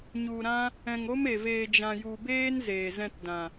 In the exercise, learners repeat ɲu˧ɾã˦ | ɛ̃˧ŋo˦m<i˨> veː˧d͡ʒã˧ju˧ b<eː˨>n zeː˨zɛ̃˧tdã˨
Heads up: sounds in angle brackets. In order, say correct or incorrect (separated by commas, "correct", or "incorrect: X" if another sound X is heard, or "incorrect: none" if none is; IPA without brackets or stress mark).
incorrect: e˨, incorrect: eː˦